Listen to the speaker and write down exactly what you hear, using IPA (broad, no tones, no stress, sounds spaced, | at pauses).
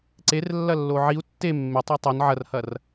ǀ e r lː ɐ lː o ʕ i u̯ tː e mː e tˤ e tˤ o n ʕ ɐ r h ɐ r